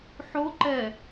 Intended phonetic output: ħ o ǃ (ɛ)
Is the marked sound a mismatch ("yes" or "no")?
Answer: no